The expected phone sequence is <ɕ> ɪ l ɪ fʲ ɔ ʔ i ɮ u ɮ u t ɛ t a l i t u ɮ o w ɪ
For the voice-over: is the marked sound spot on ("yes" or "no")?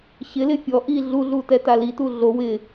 yes